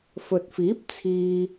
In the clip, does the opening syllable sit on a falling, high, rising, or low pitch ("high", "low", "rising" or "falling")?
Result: low